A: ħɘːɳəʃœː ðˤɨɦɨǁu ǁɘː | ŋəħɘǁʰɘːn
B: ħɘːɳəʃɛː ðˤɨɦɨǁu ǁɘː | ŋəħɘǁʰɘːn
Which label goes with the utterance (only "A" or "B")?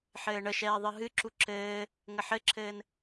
B